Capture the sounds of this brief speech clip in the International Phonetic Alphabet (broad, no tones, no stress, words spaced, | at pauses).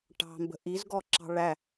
ʈɑ̤mbə̤ ʔizɡɔǁɑ̤ ɭæ